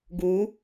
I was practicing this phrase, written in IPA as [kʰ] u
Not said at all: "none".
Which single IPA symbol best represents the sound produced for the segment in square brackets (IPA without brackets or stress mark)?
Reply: ɡ